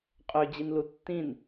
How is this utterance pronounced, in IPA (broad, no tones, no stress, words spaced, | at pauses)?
qʼød͡ʑinlu tːĩn